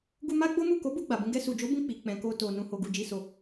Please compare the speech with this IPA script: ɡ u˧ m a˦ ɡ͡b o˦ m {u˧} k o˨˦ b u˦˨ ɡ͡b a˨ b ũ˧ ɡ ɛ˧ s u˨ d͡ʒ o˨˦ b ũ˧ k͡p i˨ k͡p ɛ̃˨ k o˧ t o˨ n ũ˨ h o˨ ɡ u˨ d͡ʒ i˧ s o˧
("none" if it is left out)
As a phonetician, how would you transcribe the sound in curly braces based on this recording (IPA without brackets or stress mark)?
u˦˨